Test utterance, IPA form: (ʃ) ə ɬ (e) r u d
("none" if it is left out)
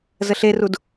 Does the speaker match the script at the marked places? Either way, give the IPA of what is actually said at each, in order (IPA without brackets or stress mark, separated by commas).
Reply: z, e